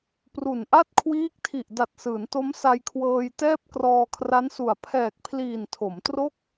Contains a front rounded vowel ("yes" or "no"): no